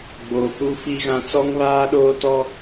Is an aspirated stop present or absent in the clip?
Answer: absent